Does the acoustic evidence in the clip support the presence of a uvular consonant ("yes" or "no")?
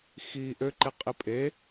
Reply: yes